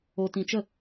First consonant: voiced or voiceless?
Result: voiceless